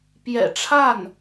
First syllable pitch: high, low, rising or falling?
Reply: low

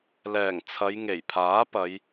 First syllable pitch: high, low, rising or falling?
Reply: low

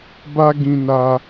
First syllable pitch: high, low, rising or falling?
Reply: high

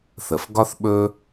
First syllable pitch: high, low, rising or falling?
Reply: low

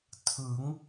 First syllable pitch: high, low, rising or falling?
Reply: rising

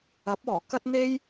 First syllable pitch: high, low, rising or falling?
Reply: rising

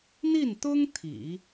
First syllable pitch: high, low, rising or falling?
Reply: falling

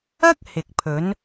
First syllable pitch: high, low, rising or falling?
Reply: high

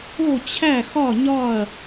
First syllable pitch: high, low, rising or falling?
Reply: falling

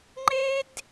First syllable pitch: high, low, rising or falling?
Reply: high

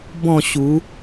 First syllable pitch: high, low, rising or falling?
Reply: falling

